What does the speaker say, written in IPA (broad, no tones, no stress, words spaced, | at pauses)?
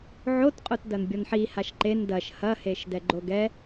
ʕotqʼot dɐnbʲɔnħi haʃǃen dɐʃ hɐheʃ dɛɡ͡ǃoɡɛ